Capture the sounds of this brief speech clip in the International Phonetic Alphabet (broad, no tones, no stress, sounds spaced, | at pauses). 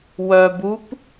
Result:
w œ b u p